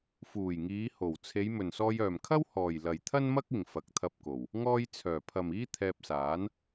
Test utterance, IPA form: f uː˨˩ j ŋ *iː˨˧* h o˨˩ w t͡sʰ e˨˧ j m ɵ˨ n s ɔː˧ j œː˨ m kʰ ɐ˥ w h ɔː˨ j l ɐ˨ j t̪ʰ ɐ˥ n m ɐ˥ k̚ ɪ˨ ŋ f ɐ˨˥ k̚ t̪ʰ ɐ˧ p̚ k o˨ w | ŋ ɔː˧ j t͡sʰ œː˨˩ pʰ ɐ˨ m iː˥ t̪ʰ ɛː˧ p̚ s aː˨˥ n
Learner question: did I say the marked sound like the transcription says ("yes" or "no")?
yes